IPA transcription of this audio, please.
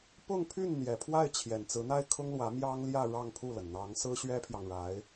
p ʊ˥˧ ŋ pʰ y˥˩ n n̪ j ɛ˨˩ pʰ w a˥˩ ɪ̯ t͡ɕʰ j ɛ˨˩ n t͡s ɹ̩˧˥ n̪ a˥˩ ɪ̯ kʰ ʊ˥ ŋ l w ä˧˥ m j ɑ˥ ŋ l j ä˥˧ ɻ ɑ˥˧ ŋ pʰ u˥˩ l ə˩ n n̪ ɑ˧˥ ŋ s ɹ̩˥ ɕ ɥ ɛ˥ pʰ j ɑ˨ ŋ ɻ a˧˥ ɪ̯

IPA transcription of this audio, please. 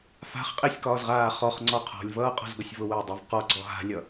f a̤ χ qʼ e sʲ k ɒː z ʁ aː χ ɔ χ ŋ͡ǀ ɔ qʰ ɔ̤ lʲ v ʌː qʼ ɔ̤ z ɡ ʌ sʲ v ʊ w ʊː dˤ a v q ɔ ɡ͡ǀ ɔ ɦ a̤ lʲ ʌ

